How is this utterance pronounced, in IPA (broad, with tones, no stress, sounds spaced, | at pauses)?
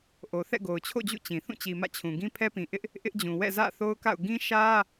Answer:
ʔ o˨ θ ɛ̰˦˨ ɡ o˨ ʊ̯ t͡ɕʰ o̰˦˨ d͡ʑ ṵ˦˨ t͡ɕ ĩ˨ θ ũ˦˨ t͡ɕ i˨ m ä̰˦˨ t͡ɕʰ ũ˨ ɡ ĩ˦ pʰ ɛ˦ p ĩ˨ ʔ ɪ˦ ʔ | ʔ ɪ˦ ʔ d͡ʑ ũ˨ w ɛ̰˦˨ z ä̰˦˨ θ o˦ ʊ̯ k a̰˦˨ ʊ̯ ɡ ĩ˦ ʃ ä˦